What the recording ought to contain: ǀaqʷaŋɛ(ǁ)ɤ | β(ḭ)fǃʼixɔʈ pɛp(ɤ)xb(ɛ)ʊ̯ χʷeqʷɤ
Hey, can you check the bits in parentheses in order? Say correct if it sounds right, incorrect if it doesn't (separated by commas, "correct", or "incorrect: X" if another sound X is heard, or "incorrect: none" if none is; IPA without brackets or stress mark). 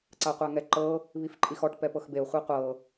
incorrect: ǃ, incorrect: i, correct, incorrect: e